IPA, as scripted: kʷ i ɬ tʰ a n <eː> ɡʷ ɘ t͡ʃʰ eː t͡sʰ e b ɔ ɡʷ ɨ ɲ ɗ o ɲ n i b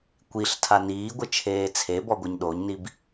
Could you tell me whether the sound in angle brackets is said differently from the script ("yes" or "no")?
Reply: yes